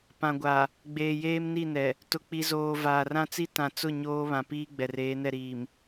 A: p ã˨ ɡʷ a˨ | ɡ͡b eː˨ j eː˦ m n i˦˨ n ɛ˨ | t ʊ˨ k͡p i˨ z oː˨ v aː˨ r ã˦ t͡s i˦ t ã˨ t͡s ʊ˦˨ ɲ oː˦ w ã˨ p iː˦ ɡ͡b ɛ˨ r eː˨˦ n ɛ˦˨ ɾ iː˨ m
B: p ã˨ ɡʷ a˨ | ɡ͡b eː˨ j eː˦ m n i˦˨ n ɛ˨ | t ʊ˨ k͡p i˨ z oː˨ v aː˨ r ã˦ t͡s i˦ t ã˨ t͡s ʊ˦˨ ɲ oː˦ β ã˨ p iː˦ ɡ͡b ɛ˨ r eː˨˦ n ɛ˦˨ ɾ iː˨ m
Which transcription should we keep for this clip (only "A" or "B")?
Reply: B